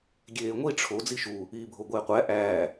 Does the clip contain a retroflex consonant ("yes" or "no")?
yes